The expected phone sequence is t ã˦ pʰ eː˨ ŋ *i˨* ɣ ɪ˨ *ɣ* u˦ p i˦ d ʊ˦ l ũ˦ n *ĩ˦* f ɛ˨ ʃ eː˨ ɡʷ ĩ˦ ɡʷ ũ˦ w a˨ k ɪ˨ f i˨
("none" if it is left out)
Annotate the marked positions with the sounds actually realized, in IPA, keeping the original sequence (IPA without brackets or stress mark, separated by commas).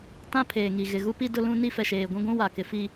i˨, ɣ, i˦